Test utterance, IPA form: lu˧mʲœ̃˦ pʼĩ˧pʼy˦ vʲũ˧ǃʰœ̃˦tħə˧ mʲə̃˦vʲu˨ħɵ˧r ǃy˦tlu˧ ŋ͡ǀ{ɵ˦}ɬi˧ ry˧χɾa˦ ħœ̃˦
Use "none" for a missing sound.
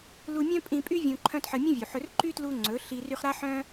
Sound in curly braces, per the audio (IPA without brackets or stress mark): ɵ˨˦